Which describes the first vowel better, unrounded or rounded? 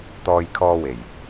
rounded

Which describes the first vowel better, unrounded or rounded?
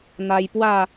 unrounded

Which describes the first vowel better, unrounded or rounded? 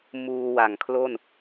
rounded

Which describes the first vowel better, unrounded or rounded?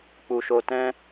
rounded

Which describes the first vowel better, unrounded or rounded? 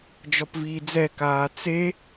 rounded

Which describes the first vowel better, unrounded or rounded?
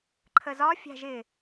unrounded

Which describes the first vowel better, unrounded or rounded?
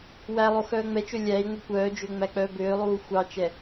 unrounded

